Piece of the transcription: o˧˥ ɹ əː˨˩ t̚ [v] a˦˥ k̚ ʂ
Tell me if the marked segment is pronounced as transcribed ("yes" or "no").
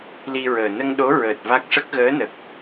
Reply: yes